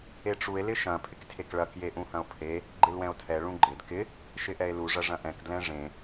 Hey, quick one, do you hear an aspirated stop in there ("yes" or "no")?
yes